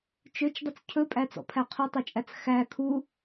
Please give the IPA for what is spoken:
t͡ʃ ø t͡ʃ dˤ ɵ t͡s cʰ ɵ pʼ æ t͡s ɔ̰ pʰ æ qʰ ɔ tˤ ɵ t͡ʃʼ æ t͡s x æ kʰ u

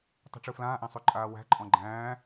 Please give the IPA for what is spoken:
tˤ i̤ ʈ͡ʂ ɯ f l ãː ʔ æ̃ sˤ y ǃʼ aː w æ̤ ǃʼ ɔ̃ ɡ͡ǃ æ̃ː

